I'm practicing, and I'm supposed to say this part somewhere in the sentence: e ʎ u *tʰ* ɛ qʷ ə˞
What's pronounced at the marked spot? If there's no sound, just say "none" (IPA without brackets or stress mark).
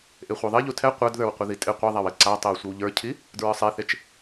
tʰ